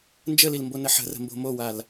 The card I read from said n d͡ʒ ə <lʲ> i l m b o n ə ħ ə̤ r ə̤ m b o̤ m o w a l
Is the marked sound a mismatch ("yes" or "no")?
yes